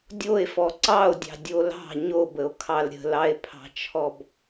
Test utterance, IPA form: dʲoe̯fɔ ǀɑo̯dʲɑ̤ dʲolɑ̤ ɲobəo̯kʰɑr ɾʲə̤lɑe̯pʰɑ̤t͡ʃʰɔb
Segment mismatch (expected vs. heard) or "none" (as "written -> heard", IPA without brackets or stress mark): r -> l